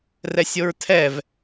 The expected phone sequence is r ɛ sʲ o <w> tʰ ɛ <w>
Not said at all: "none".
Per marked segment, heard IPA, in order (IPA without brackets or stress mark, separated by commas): ɹ, v